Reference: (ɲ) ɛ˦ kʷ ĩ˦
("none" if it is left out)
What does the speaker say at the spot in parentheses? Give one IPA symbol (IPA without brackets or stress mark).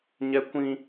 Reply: ɲ